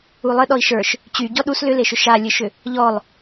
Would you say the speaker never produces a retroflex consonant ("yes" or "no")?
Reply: yes